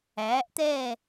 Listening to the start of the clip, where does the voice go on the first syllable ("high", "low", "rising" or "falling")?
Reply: rising